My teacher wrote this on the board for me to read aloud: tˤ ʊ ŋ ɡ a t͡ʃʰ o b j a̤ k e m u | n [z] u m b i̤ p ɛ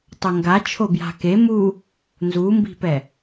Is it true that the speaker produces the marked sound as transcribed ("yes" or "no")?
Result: yes